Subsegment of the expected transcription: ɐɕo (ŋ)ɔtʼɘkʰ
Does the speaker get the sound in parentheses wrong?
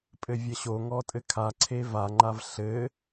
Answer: no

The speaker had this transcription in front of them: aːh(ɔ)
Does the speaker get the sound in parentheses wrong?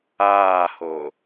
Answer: yes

